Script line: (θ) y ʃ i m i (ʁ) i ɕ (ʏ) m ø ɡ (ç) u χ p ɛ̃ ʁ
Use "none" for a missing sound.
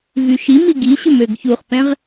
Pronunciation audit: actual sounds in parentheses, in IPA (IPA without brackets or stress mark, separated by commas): v, ɡ, ʏ, ç